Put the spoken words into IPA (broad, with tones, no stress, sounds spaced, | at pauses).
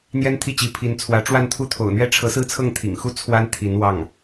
n̪ j ɛ˥ n t̪ʰ i˥˩ t͡ɕ i˧˥ pʰ i˧˥ n t͡sʰ w ä˧˥ ʈ͡ʂ w a˥˧ n t̪ʰ u˥˩ t̪ʰ o̰˨˩ ʊ̯ n̪ ɥ ɛ˥ ʈ͡ʂʰ ɤ˧˥ s ɹ̩˥˧ t͡sʰ ɤ˥˩ ŋ t̪ʰ ḭ˨˩ ŋ x u˥ t͡sʰ w a˥ n t̪ʰ i˧˥ n w ɑ˥˩ ŋ